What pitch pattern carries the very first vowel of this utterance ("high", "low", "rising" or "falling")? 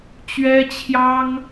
high